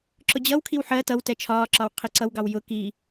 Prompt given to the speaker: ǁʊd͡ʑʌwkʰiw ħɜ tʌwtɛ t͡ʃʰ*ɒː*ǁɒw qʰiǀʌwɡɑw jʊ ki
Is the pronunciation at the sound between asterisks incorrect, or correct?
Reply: correct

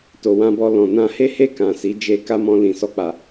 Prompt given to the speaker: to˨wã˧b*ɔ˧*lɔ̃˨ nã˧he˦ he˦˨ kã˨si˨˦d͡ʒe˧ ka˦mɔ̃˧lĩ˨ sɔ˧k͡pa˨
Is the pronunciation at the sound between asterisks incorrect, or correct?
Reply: correct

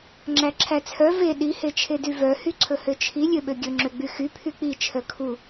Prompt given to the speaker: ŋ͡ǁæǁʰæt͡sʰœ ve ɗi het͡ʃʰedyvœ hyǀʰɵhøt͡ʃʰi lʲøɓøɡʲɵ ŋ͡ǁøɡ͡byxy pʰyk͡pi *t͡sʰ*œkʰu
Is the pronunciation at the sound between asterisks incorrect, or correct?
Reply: incorrect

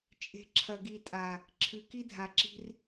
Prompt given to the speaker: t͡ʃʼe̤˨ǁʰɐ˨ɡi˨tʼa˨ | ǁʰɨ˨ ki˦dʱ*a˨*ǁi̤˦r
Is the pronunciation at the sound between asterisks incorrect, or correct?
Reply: correct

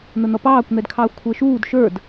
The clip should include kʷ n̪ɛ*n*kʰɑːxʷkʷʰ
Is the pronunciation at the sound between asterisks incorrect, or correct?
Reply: incorrect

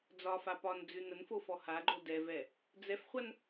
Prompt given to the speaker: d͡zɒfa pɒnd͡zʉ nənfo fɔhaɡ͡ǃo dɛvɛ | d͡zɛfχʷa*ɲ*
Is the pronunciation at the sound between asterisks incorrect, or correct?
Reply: incorrect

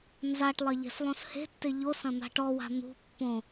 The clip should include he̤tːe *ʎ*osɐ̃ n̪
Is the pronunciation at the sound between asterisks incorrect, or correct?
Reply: correct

